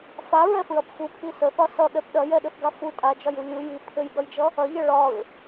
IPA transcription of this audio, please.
f a ɹ ɛ f ɹ ɐ p f u pʰ i s ə θ ɒ s ʌ ɠ ɛ p ɗ ɐ j ɛ ɗ ɘ θ ɡ a f u tʼ a d͡ʒ ɒ j u lʲ u j i pʰ ɘ j ɠ ʌ j d͡ʒ ʌ | ɐ ʎ ɐ ɭ ɒ ɹ

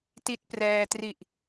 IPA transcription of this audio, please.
t i˦˥ t̚ p r ɛː˧ t r i˨˩ ʔ

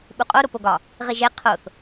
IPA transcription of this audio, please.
ɓ u qʼ o ɾ o p o ɡ ɒ | ʁ i ʒ e qʰ o θ

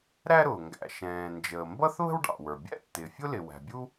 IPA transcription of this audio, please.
ɾ æ˥ ɾ ʊː˩ ŋ ɡ æ̰˩ ʃ ɛ̃ː˩ n d͡ʒ əː˩ m b ʌ˥ θ β ə̤˥ w ɖ ɑ̰˩ w ə˞˩ bʲ æ̰˥ tː ɪː˩ fʲ ʊ˥ l ɪ˩ w æ̤˩ bʲ u˥

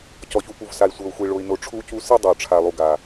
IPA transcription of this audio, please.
c ɔ˨ ç u˨ p u˨ v s a˨ i̯ sʷ ɤ˨ u̯ xʷ i˨ ɭ o˨ i̯ n o˨ ʈ͡ʂʰ u˦ c u˦ s i˦ dˤ o˨ ʈ͡ʂʰ a˨ lˠ u˨ ɡ a˨

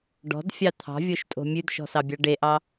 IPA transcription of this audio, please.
ɖ ɔ̤ d fʲ ɑ t̪ʰ ɑ̤ vʲ o ʃ tʼ o̤ mʲ ʉ d ʃ ɔ̤ s ɑ bʲ ɑ ɖ e ʔ ɑ

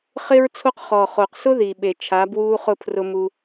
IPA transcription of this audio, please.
χ ɪ˧ ɹ t͡sʰ o˧ q χ ɔ˨ χ o˨ q s ʊ˦ ð i˨ ɓ e˨ t͡ʃʰ a˨˦ b w uː˦ χ ʊ˦˨ pʰ r ʊ˧ m u˧

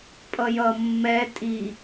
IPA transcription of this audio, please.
pʼ ʌ j ʌ mː ɛ tʼ i

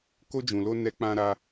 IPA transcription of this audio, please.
k o˧ d͡ʒ ũ˨ l o˧ n ɛ˧ k͡p ã˧ ɾ a˧

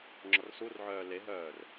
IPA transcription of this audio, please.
ŋ͡ǁ ɔ r s u r ʕ œː l e ɦ œː r

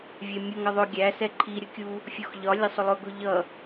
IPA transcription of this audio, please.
vʲ ɛ mʲ ʊ ŋ ʌ ðˤ ʊ ɡʲ æ s ɛ ǃʰ i ɾʲ ə kʲ u | fʲ ɔ x ʎ ɒ lʲ ɑ sˤ ʊ lˠ ʊ ɡ ʊ ʎ ʌ

